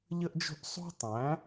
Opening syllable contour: high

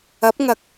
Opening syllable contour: rising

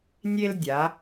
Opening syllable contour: high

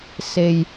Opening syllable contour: low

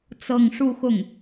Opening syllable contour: falling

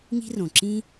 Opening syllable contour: high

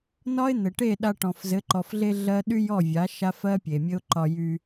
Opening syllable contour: high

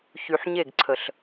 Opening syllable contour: low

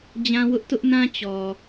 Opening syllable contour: high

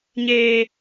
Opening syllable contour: high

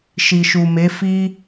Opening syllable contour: low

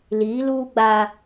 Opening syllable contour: rising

